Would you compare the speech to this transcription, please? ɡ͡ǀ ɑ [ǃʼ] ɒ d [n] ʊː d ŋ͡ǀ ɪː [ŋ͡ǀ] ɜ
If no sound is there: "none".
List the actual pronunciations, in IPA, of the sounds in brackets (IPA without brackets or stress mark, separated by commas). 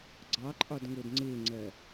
ǃʼ, ŋ, ŋ͡ǀ